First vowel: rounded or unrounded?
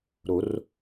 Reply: rounded